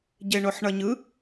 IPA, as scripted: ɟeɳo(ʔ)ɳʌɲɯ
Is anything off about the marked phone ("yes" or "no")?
yes